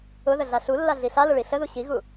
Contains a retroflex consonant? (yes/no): yes